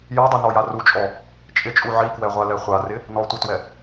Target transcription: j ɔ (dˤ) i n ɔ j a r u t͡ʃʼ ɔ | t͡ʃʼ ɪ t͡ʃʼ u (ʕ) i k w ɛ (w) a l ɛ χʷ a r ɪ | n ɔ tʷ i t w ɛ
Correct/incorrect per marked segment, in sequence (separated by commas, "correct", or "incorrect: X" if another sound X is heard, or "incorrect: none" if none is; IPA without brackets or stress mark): correct, correct, incorrect: ʁʷ